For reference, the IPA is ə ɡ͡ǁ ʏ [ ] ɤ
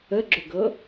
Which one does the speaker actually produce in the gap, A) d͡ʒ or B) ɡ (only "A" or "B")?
B